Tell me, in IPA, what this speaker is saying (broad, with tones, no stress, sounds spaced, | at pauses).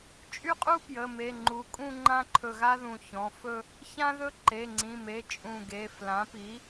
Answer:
t͡ʃʼ y˥˧ qʼ u˥ p j ə˩˧˩ m e˩˧˩ ŋ͡ǃ u˩˥ kʼ ũ˥˧ ŋ͡ǃ ã˥ ǃʰ ɵ˧˩ ɣ a˥ ð ũ˧˩ ç ɔ̃˩˧˩ f ɵ˥˧ | ç ã˥ ð ɵ˥ ǃ e˩˧˩ ŋ͡ǀ ĩ˩˧˩ m e˩˧˩ t͡ʃʼ ũ˧˩ ɡ e˩˧˩ f l ã˩˥ p i˩˥